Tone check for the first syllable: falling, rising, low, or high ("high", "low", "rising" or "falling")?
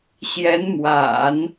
rising